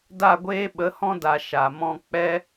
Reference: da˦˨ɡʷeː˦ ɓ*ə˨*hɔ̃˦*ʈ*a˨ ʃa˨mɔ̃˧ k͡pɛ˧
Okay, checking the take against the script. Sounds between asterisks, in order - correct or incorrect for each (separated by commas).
incorrect, incorrect